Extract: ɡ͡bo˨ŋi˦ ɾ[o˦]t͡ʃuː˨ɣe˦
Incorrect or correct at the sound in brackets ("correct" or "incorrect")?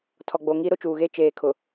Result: correct